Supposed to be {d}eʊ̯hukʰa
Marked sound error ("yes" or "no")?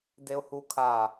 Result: no